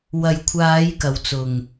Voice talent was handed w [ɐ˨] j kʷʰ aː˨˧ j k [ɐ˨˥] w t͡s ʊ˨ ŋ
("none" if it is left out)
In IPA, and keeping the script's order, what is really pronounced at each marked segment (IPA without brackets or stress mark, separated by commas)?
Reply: ɐ˨, ɐ˨˧